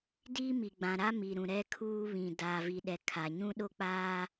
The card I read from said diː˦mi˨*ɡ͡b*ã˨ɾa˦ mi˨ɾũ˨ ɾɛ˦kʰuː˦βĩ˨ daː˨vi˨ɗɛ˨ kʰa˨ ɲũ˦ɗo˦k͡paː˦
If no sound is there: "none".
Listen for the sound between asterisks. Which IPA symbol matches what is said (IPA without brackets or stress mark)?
ɡ͡b